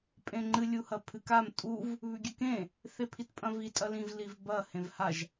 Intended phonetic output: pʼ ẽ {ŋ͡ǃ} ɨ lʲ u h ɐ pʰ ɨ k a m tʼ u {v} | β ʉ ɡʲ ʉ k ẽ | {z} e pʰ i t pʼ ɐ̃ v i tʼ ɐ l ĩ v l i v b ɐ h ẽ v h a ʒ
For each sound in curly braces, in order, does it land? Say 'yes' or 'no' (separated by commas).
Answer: yes, yes, no